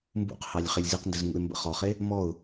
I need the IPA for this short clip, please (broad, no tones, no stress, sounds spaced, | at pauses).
m b ṵ q h ɑ lʲ χ e lʲ z i q n d ə z ŋ ṵ ɪ̯ m b ə̰ χ ɔ χ e | m ɔ ʊ̯